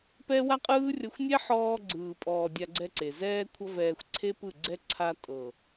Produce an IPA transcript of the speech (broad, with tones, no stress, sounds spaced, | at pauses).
p ɛ˦ w a˦ qʼ ɯː˦ rʲ ʌ˧ xʷ nʲ ɛ˦ ħ ɔː˧ ɡ͡ǀ ɯː˨ pʼ ɔː˨ dʲ a˧ ɡ͡ǀ ɛ˧ ǀ e˨ z ɛː˦ kʷʰ ʌ˦ v ɛː˧ xʷ ǀʰ e˦ p ɯ˦˨ ɡ͡ǀ ɛ˦ ǀʰ a˧ tʼ ɤ˨